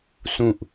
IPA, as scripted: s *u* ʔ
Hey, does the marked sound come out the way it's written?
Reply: no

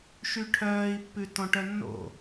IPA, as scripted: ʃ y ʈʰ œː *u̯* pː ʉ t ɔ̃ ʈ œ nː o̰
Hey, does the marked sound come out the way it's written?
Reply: no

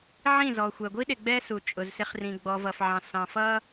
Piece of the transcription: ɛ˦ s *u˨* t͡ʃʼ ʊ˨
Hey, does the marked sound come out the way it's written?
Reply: yes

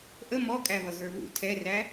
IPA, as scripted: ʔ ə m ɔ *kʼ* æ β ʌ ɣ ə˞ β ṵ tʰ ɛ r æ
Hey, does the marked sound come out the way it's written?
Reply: yes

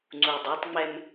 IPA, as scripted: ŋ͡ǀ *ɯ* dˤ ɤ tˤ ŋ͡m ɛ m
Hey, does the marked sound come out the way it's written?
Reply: no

